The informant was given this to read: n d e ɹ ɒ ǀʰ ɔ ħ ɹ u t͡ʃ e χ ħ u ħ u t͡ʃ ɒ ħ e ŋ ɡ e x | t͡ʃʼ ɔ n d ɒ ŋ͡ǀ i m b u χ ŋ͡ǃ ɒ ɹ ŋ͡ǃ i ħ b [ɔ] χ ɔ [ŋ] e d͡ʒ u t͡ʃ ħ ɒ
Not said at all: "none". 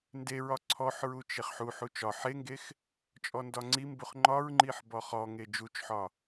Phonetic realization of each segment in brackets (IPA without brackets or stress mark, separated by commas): ɔ, ŋ